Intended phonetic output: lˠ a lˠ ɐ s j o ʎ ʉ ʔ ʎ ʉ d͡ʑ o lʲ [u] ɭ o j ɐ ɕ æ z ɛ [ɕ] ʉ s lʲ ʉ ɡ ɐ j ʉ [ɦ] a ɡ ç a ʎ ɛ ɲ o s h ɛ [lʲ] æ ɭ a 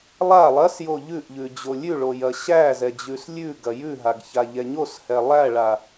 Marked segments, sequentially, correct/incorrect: incorrect, incorrect, correct, incorrect

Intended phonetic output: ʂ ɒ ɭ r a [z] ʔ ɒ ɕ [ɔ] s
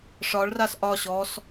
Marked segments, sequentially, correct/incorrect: incorrect, correct

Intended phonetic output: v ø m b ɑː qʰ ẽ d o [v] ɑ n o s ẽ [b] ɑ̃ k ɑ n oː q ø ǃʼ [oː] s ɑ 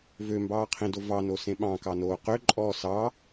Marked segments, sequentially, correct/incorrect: correct, incorrect, incorrect

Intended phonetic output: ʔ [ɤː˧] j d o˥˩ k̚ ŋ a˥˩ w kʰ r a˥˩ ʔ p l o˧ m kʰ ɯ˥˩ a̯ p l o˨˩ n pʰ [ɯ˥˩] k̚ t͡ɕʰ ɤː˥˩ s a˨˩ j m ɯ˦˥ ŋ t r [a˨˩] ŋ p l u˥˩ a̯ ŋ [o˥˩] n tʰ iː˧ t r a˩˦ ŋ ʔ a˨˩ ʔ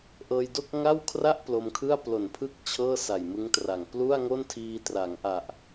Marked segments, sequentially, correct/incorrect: correct, incorrect, correct, correct

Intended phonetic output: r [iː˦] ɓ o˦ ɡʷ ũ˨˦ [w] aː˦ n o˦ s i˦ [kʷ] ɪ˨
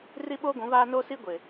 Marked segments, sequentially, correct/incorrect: incorrect, incorrect, incorrect

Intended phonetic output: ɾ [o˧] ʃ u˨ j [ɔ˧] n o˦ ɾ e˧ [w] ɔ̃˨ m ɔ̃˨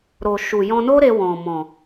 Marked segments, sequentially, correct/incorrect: incorrect, incorrect, correct

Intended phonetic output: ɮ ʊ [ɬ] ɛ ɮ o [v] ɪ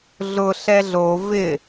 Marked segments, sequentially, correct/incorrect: correct, correct

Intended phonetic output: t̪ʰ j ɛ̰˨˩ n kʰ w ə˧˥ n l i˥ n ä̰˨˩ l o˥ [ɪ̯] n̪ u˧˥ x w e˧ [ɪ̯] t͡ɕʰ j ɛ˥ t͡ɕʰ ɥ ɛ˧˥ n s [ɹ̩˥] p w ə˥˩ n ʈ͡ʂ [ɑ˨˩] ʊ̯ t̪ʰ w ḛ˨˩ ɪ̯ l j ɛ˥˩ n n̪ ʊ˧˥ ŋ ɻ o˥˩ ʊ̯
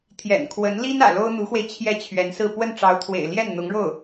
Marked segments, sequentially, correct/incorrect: incorrect, correct, incorrect, incorrect

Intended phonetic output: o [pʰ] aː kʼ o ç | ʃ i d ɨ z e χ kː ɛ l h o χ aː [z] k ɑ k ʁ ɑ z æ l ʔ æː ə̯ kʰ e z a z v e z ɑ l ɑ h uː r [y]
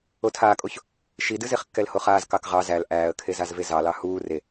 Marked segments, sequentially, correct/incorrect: incorrect, correct, incorrect

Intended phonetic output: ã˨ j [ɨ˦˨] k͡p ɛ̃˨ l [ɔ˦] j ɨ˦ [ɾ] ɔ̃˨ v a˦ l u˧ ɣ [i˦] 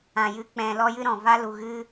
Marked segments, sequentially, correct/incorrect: incorrect, correct, correct, incorrect

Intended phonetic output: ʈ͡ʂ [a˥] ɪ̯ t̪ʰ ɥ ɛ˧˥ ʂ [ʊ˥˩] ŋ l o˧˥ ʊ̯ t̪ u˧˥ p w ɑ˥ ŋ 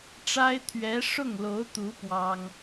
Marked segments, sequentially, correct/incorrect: correct, correct

